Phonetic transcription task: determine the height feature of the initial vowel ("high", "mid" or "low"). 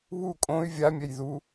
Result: high